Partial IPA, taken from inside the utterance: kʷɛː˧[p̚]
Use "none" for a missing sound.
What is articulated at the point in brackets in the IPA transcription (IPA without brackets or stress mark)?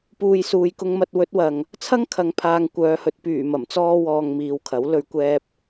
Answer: p̚